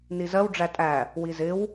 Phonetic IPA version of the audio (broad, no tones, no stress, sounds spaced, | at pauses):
n i z ɜ w ɖ͡ʐ æ tʼ æ | w i z ɪ w